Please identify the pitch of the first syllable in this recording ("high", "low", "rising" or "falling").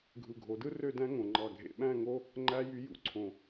low